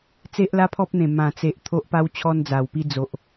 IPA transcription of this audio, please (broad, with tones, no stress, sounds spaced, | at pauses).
t͡s e˦ ʔ l a˦ pʰ ɔ˦ p̚ n̪ ẽ˨˩ m ã˨˩ t͡s e˨ ʔ t̪ʰ o˦ ʔ p a˦ w t͡ɕʰ ɔ˦ n d͡z a˨˩ w p i˦ d͡z o˨ ʔ